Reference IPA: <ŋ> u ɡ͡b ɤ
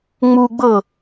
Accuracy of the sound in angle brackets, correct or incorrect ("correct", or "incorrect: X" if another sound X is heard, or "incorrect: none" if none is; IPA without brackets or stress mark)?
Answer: incorrect: ŋ͡m